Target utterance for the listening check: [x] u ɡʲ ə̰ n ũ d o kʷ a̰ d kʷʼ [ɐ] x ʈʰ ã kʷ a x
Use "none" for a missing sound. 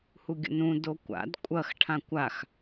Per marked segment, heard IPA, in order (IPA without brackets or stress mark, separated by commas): h, ɐ